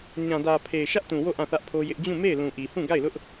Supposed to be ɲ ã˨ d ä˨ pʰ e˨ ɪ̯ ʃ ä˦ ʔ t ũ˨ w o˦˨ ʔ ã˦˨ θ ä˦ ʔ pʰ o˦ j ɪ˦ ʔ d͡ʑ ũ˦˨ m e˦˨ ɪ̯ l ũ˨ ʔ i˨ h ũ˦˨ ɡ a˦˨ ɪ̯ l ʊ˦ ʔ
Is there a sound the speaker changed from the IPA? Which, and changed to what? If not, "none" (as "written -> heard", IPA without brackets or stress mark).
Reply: none